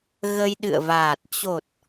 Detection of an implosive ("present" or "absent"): present